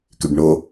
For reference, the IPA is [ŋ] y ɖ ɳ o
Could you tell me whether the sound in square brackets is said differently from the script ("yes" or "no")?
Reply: yes